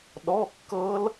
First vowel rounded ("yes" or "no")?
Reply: yes